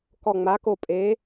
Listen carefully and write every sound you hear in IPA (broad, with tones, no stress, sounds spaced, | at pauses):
k ɔ˧˩ ŋ͡m a˨˥ k o˧˩ pʼ e˨˥